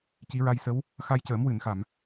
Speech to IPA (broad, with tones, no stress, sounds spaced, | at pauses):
c i˧˥ ɹ a˧ j s ə˧˥ w | x a˧ j c əː˨˩˦ m w ɨ˨˩˨ n x a˨˩˨ m